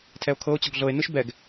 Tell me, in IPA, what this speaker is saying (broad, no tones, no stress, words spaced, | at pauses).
tʰɛo̯kʰɤo̯t͡ɕɔɡ ɮɤe̯nɯʃ bɛɡ